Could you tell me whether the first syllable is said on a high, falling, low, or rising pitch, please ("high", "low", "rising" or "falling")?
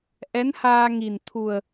rising